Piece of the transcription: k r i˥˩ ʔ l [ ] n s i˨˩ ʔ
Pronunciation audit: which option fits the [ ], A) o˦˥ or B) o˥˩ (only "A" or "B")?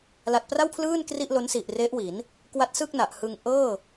A